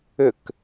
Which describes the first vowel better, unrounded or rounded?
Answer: rounded